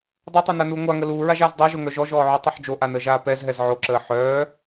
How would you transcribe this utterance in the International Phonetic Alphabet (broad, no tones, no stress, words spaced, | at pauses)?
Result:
dˤotˤœnanuː ŋʷaŋə luːɹaʒaːz dˤɛʒoŋœ ʒɔʒɔːʕutˤoħ d͡ʒoʔanəːʒaː pɛzɦɛz ʕoǁəː ħœː